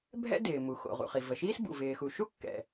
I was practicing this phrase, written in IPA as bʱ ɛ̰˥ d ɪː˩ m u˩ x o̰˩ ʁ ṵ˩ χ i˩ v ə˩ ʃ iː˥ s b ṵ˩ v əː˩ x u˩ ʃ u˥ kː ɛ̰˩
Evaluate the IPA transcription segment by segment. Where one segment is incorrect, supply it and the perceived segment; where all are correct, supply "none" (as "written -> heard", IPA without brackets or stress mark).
əː˩ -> ɪː˩